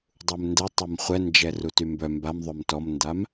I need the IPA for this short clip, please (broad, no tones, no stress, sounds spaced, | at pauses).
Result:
dˤ u m n d ɛ tˤ ɛ m χʷ ɛ n d͡ʒ ɛ r u t y m b œ m b a m ðˤ ø m t ɔ m n d a m